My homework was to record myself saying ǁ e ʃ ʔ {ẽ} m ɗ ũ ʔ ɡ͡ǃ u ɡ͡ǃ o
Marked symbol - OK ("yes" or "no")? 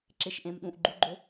yes